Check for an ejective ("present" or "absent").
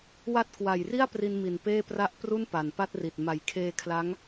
absent